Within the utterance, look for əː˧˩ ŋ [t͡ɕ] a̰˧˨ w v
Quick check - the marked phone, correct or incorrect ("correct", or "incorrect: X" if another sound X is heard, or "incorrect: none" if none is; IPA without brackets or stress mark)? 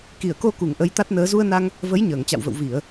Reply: correct